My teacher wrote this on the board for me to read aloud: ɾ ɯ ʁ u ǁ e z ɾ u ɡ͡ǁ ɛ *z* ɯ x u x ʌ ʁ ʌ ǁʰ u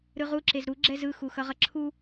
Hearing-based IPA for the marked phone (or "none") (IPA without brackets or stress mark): z